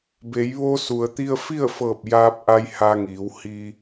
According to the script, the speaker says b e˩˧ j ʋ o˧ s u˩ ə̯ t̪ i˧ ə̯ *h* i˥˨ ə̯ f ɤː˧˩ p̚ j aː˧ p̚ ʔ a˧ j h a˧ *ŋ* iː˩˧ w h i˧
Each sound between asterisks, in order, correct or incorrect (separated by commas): incorrect, correct